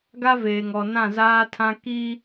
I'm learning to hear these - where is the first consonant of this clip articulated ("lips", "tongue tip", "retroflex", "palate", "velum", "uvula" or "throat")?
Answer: velum